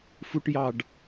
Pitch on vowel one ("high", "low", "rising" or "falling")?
high